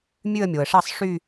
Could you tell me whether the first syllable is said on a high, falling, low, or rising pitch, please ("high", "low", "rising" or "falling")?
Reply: falling